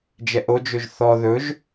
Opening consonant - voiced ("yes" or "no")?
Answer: yes